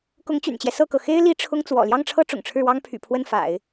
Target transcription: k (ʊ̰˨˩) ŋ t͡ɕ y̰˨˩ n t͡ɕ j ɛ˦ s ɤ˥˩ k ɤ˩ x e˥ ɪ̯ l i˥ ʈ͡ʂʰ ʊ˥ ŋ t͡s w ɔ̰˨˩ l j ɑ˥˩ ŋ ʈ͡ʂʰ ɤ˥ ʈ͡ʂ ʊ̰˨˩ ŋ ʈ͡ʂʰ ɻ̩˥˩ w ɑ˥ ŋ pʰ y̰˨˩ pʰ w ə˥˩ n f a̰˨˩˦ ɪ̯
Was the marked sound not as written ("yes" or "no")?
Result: yes